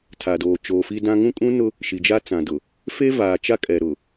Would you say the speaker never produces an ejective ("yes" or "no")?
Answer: no